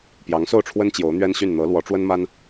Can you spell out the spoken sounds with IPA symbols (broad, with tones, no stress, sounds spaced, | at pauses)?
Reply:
p j ɑ˧˥ ŋ s o˥˩ ʊ̯ ʈ͡ʂʰ w ə˥ n t͡ɕ j o˧˥ ʊ̯ n̪ ɥ ɛ˥ n ɕ y˥˩ n n̪ ɤ˧˥ l w ɔ˧˥ ʈ͡ʂ w ə˥ n m a˥ n